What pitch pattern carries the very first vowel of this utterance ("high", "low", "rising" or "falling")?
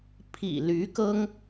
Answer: low